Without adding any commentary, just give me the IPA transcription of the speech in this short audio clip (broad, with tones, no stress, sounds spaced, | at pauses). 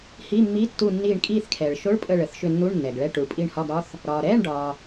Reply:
h i˧˥˧ mː i˧˥˧ tː u˦˨ nː iː˦˨ ɳ kʼ iː˦˨ θ kʰ ɛː˨ ɭ ʃ o˧˥˧ ɭ pʼ ə˦˨ ɭ ə˨ θ ʃ ʏ˦˨ nː u˧˥˧ ɳ nː ɛ˨ ɡ ɭ ɛ˧˥˧ ʈ u˨ ɭ pʼ i˦˨ ɳ h ɒ˧˥˧ ɡ ɾ ɒ˧˥˧ θ | ɾ ɒː˨ ɾ ɛː˧˥˧ ɳ ɖ ɒː˨